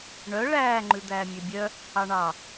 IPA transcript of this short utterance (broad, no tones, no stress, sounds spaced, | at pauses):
ɳ œ ɭ æː ŋ͡ǃ ʉ d̪ æː mʲ ø bʲ œ | ɑ ɳ ɑ